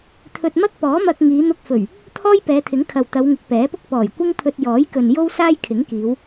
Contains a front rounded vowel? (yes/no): no